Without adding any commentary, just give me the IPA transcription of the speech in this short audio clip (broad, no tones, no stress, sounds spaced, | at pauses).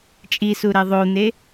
t͡ʃʼ i s u ɾ ɛ ðˤ o n̪ e